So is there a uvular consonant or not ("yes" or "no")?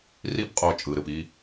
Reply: yes